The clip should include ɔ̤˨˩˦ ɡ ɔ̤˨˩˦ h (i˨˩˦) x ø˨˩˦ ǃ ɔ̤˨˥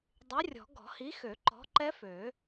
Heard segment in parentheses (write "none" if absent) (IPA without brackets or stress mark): i˨˥